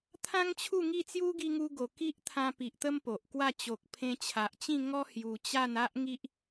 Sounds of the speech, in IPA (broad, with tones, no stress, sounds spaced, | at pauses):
t̪ʰ ã˦ ŋ t͡ɕʰ u˥˧ ŋ i˥˧ t͡s j u˦ ɡ i˧ ŋ u˧ ɡ o˨˩ k i˦ ʔ t̪ʰ ã˧ p i˨ ʔ t̪ ə˦ m p o˨ ʔ k w a˥˧ t͡ɕ o˨ k̚ pʰ ẽ˧ t͡ɕʰ a˨ ʔ t͡ɕ ĩ˥˧ ŋ ɔ˦ h j u˧ t͡ɕ a˥˧ n a˦ ʔ ŋ i˦ ʔ